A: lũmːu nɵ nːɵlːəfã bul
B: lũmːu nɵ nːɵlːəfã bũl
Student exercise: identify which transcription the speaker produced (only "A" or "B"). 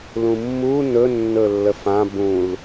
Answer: B